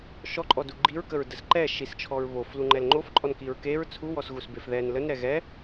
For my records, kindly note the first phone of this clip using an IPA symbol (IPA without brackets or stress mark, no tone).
ʃ